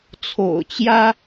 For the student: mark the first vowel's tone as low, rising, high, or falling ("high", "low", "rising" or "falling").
low